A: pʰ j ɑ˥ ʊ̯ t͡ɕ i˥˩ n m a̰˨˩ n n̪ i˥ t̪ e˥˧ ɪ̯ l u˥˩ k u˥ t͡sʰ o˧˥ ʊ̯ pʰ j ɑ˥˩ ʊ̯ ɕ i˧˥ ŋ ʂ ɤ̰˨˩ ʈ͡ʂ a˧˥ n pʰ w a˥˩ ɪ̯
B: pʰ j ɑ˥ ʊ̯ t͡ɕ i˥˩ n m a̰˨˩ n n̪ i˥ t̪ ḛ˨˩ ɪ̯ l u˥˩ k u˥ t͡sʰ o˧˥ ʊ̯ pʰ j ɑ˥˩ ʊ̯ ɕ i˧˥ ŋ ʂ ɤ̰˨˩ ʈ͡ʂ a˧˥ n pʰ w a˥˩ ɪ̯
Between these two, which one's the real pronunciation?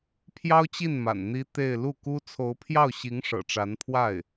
A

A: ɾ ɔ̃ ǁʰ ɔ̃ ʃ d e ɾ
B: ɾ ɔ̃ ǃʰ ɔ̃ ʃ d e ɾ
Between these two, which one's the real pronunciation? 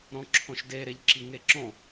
A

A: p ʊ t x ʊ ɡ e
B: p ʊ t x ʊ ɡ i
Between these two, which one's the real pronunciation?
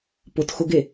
A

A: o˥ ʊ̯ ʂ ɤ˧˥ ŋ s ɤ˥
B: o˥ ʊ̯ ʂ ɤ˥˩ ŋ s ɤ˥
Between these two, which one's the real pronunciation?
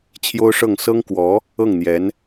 B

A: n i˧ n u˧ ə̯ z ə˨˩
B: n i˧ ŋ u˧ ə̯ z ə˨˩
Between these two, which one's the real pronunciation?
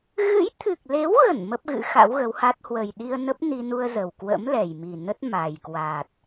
A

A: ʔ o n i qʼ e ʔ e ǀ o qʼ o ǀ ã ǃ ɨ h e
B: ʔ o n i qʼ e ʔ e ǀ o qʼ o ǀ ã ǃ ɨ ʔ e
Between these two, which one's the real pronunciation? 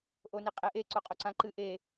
B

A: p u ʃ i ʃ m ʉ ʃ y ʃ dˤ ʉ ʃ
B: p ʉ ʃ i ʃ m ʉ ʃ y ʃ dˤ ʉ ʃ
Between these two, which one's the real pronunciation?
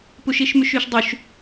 A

